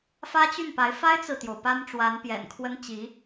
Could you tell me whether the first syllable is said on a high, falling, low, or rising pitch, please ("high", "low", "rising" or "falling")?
high